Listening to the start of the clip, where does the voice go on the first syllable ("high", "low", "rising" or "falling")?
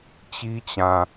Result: high